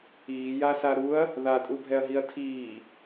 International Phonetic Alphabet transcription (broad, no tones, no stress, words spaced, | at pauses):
iːjasa ɾuɐ̯ | ðatʼubʱɛɐ̯ɦiɐ̯ tʰiː